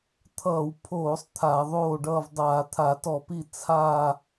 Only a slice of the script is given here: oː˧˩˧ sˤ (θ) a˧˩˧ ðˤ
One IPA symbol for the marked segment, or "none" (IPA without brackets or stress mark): t̪ʰ